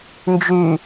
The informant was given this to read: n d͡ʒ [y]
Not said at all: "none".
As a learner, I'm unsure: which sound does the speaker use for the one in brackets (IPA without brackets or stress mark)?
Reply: y